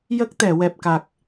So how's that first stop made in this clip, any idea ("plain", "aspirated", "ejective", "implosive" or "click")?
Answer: plain